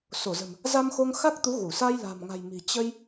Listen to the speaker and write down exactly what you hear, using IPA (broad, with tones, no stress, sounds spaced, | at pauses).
s o˧˩ z ə̤˨˩ m | z a˧ m x o˧ ŋ x a˦˥ k̚ t̪ u˨˦ ɣ u˧˩ s a˧ j l a̤˨˩ m ŋ a̤˨˩ j m i̤˨˩ t͡ɕ ə˧ j